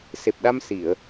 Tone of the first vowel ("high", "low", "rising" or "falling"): low